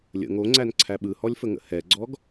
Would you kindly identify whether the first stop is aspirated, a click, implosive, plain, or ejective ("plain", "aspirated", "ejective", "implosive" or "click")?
click